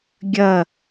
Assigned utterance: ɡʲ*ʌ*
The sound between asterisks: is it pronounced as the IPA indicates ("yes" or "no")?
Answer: yes